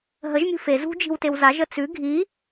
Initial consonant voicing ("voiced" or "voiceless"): voiced